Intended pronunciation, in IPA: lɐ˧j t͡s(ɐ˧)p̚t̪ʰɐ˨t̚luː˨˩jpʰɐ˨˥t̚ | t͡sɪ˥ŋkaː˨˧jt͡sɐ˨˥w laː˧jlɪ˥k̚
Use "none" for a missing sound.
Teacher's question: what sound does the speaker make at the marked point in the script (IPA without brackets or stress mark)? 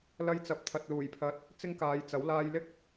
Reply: ɐ˨